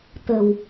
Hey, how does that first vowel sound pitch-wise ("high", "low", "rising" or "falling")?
low